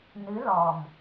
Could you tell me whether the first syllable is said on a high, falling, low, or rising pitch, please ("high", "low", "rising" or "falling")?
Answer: rising